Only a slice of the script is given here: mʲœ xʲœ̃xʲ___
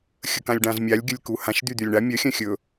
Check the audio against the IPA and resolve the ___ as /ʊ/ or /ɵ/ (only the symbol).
ɵ